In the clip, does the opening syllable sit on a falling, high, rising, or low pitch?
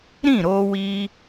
falling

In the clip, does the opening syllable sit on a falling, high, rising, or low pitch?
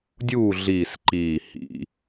falling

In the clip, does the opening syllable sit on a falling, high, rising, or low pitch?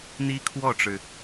high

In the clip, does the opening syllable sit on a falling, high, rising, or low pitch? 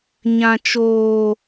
low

